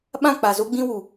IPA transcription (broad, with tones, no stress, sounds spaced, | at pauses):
ɓ ã˦˨ k͡p a˨ z o˦ ɡ͡b ĩ˦ w u˨